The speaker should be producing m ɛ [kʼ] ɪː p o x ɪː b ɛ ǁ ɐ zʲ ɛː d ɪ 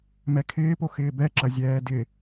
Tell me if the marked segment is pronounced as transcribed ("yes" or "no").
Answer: no